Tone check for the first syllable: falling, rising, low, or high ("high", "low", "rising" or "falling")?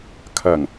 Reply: low